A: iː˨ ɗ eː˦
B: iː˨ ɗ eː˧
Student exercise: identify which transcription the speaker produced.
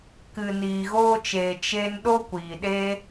A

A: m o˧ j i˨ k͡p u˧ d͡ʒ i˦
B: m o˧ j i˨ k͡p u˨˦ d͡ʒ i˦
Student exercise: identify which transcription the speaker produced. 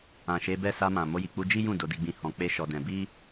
A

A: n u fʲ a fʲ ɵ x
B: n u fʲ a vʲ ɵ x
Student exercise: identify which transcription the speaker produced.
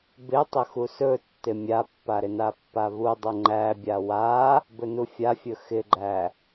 A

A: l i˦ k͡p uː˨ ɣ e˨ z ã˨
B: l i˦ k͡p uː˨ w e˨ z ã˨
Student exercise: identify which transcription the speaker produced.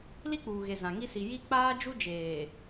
A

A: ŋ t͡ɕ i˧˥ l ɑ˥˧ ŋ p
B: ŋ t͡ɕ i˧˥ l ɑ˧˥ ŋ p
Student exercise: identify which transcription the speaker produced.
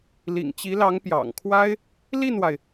B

